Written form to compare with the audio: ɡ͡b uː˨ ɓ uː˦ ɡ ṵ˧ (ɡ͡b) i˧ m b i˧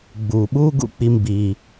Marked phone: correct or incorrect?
incorrect: k͡p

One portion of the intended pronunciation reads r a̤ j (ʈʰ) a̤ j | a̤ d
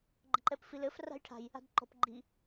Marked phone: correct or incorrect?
correct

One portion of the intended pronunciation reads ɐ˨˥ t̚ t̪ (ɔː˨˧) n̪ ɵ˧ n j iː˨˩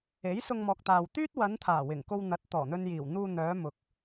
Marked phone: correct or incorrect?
incorrect: ɔː˨˩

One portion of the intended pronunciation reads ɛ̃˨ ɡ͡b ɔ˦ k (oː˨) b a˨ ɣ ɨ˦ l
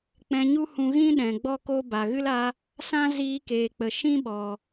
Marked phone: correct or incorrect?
incorrect: oː˦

